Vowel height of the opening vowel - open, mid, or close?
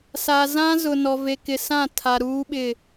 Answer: open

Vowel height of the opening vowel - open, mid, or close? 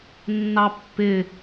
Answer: open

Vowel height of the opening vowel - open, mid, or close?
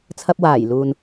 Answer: open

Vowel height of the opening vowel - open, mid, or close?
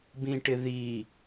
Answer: close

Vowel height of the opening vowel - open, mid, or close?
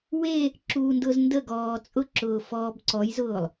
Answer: mid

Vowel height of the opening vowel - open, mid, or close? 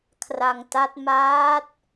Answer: open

